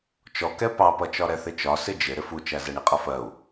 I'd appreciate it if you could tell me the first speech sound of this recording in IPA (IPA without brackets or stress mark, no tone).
t͡ʃ